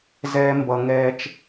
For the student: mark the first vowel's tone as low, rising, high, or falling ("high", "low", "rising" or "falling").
high